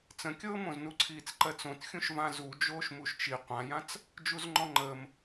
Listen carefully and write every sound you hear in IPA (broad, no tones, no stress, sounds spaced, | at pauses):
t͡s ə̃ kʲ ɤː m õ z n u ǀʰ iː t͡s ǃ ɜ t͡s õ t xʲ ũ ʃ v ã z u d͡ʒ oː ʃ m u ʃ t͡ʃ i qʷ ã j ã t͡s | d͡ʒ u z ŋ͡ǃ ɔ̃ ŋ͡ǃ əː m